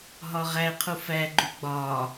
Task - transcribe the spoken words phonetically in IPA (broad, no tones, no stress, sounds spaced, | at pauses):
ɦ ɒ ʁ æ qʰ u f æ ɡ͡ǃ u ɡ͡b ɒ